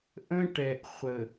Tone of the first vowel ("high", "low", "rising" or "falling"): high